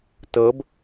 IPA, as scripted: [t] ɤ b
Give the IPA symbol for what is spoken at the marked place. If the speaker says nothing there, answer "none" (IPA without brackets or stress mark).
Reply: t